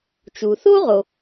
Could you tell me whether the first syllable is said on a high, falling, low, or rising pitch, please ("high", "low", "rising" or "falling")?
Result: low